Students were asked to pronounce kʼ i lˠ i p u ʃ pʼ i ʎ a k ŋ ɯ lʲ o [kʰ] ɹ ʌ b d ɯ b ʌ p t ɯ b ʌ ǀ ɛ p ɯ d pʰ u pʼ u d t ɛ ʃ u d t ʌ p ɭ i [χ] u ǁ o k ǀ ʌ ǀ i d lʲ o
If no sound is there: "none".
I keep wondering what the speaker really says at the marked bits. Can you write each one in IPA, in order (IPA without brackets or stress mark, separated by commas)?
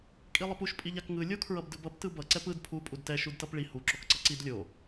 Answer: kʰ, h